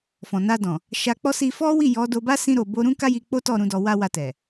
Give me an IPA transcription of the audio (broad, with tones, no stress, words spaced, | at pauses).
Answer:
fɔ̃˨na˧dɔ̃˨ | ʃa˧k͡pɔ˦si˧ fɔ˦ wi˦˨jɔ˨˦do˧ba˦ sĩ˧ɾo˨bo˧ ɾũ˦ka˦ji˧ k͡po˦tɔ˦˨ɾũ˨˦ dɔ˧wa˦wa˧tɛ˨